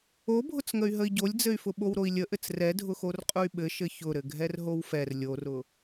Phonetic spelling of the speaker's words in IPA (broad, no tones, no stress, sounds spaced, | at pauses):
o bʱ ʊ t͡s ŋ ə y̯ ɦ ə i̯ ɟ o lʲ d͡z ɘ y̯ f ʊ ɓ o w ɾ o i̯ lʲ ə ʔ ɘ t͡s r ɛ dʱ ʊ x o r qʼ ʊ y̯ ɓ ɘ ʃ ɘ ç ʊ ɾ ɘ ɡʱ ɛ r ɦ o w f ɛ r lʲ o r ʊ